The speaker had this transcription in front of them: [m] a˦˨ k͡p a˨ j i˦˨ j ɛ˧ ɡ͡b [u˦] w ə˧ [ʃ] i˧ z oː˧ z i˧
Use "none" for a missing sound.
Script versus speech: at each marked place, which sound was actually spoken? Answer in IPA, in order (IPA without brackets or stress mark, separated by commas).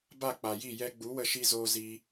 b, u˨˦, ʃ